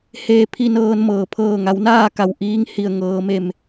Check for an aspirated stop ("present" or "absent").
present